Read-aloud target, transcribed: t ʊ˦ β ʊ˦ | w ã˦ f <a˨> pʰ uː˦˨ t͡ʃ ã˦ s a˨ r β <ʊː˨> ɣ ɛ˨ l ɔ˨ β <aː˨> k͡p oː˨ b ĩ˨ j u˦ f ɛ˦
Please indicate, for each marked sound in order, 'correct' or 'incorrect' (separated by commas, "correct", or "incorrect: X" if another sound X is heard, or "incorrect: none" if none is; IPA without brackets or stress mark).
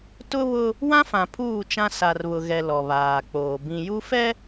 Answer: incorrect: ã˨, incorrect: ʊ˨, correct